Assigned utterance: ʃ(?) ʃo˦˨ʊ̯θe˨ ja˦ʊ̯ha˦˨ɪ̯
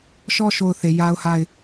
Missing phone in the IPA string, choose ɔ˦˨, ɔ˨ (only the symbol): ɔ˦˨